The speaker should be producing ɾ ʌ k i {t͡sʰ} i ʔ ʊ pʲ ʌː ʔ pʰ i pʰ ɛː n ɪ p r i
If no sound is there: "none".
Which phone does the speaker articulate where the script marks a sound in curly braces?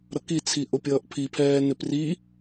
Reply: t͡sʰ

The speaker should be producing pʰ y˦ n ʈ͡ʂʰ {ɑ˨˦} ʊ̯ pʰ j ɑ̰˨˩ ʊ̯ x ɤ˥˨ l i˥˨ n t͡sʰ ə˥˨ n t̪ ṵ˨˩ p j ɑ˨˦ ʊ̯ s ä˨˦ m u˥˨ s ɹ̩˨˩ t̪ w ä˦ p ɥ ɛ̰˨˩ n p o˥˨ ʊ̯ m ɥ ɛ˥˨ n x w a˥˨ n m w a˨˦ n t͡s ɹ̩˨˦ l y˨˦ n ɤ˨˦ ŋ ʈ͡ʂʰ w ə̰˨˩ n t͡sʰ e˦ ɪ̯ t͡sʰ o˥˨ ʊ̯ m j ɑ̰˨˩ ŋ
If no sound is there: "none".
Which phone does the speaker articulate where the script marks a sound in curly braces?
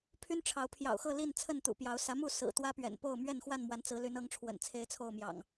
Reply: ɑ˨˦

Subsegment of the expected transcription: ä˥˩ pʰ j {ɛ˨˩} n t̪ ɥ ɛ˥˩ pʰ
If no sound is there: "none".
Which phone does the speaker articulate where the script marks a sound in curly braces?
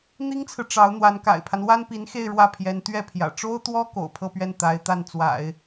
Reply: ɛ˧˥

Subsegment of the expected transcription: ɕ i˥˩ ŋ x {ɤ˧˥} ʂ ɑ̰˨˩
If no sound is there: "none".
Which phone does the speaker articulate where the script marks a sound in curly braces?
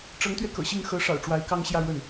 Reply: ɤ˧˥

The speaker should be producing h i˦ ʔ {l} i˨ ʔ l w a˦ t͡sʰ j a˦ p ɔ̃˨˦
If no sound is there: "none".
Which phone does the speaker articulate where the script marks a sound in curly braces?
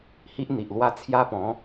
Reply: n̪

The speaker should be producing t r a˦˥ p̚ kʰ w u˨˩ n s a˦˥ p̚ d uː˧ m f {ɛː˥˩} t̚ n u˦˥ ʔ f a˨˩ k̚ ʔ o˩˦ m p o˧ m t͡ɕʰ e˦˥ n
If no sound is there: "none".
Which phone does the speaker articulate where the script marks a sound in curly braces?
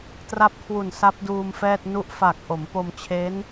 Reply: ɛː˥˩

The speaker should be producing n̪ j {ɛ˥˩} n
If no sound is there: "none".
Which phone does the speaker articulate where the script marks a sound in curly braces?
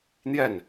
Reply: ɛ˥˩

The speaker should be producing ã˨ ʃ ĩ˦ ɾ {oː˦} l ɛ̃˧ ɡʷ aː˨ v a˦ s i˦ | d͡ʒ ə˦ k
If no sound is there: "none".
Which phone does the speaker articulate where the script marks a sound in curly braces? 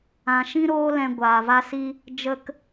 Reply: oː˦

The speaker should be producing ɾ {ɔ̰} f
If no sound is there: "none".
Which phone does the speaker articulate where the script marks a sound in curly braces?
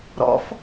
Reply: ɔ̰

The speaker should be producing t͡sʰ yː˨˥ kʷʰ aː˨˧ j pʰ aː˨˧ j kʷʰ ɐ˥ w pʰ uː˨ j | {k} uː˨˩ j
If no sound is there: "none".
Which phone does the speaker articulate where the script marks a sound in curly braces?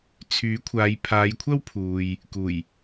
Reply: k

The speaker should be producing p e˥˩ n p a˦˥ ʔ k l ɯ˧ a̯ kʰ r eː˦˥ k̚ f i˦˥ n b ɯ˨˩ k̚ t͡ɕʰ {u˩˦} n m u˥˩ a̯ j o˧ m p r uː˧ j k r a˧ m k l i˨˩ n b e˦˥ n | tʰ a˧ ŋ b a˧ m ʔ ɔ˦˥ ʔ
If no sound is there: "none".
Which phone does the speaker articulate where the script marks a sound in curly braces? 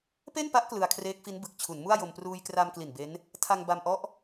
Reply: u˩˦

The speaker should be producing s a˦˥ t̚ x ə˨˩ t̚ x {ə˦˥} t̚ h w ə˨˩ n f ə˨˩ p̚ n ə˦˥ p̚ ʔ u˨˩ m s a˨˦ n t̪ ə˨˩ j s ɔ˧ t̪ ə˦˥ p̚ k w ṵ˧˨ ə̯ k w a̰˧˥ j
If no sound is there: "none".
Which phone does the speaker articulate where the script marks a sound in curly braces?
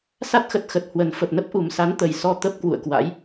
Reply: ə˨˩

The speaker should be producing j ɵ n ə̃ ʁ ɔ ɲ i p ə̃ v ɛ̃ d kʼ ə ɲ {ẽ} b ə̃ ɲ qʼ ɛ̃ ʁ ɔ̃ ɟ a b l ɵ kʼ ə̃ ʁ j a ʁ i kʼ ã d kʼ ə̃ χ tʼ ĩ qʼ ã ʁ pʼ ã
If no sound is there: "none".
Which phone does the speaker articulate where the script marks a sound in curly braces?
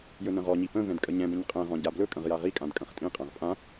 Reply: ɛ̃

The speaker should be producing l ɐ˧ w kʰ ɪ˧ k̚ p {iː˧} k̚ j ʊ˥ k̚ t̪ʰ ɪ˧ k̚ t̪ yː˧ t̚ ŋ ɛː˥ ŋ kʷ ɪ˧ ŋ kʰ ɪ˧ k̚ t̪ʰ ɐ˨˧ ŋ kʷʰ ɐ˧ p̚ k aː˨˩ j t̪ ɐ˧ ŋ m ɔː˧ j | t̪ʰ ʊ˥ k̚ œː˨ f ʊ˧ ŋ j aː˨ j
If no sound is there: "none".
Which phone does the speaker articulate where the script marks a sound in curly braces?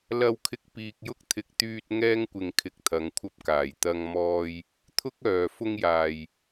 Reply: iː˧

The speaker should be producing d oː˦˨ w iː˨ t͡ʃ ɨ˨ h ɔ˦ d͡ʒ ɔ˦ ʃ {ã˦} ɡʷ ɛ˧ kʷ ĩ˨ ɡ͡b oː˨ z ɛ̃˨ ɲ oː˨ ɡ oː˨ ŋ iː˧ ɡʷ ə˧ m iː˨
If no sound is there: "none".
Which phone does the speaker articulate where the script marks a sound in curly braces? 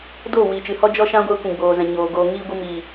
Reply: ã˦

